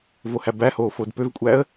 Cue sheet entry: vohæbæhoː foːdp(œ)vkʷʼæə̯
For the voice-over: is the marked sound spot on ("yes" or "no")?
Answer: no